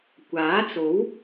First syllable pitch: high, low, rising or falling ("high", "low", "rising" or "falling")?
rising